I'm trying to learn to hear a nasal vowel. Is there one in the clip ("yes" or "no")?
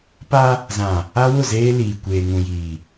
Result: yes